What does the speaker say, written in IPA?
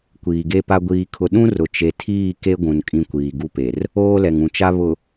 kʷiː˨ɡe˦pa˦ ɡʷiː˦kʰʊ˦ ɗũ˦rʊ˨ t͡ʃe˨tʰiː˦˨ ke˦ɡʷũ˨n kʼĩ˦kʷiː˨ɡu˦pe˨r | oː˦lɛ˨ŋ ũ˨t͡ʃa˦ βʊ˨

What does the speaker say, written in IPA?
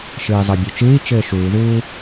ʃɨːi̯zˤɤbʲot͡ʃɨːi̯ t͡ʃɘːʃuːðuː

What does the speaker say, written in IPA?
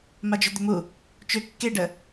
mad͡ʒʏd̪ʏmu | t͡ʃʏ kːeɖə

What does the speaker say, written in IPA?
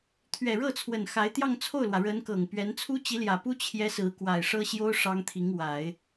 t̪ʰɥɛ˨˩ɻɤ˥˩t͡sʰwə˨˩n xa˧˥ɪ̯ t̪jɑ˥˧ŋt͡sʰo˥˩ʊ̯lwä˩ ɻə˧˥n kɤ˨˩ŋpɥɛ˧˥n t͡sʰu˥t͡ɕi˧˥ljä˨˩pu˥ t͡ɕʰjɛ˥sɹ̩˧˥ kwa˨˩ɪ̯ ʂɤ˥ɕjo˥ʊ̯ ʂɑ˥ŋt̪ʰi˧˥ŋwa˨˩˦ɪ̯

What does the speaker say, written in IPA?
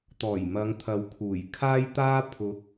t̪ɔː˨˩jmɐ˨˧ŋt̪ʰɐ˨wkʰuː˨˩j kʰaː˥jt̪aː˥ pʰʊ˨˥k̚

